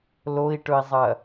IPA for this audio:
l o i̯ ʈ ɵ i̯ zˤ ɐ

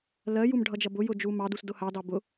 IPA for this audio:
l ɜ j u m ɖʱ ʌ d͡ʒ ʌ b ʊ j ʊ d͡ʒ u m ɑ d u s d ʊ h ɑ d ɑ b ʊ

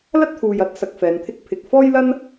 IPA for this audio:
l ɐ˥ t̚ t̪ʰ uː˨ j ɐ˨˥ t̚ s ɐ˧ k̚ f ɛː˨˧ n t̪ʰ ɪ˥ k̚ pʰ ɪ˨ k̚ f ɔː˥ j l ɐ˥ n

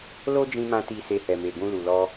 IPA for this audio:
l o˦ d͡ʒ ĩ˧ m ã˧ t i˧ s e˧ h ɛ˨ m e˨ ɡ ũ˧ l u˨ l ɔ˧

